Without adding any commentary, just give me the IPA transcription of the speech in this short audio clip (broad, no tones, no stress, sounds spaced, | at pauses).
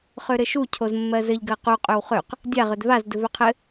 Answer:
χ ø ɾ ɘ ʃ u cʰ o z mː ɜ z ɘ ʎ ɡ ɜ q u qʼ ø w χ ø q | dʲ a ʁ ø d v a z d ɘ v ø qʰ ɘ